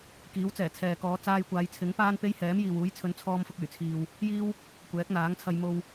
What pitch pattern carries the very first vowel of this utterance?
rising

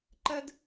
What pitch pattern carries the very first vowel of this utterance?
high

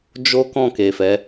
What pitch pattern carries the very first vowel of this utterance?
high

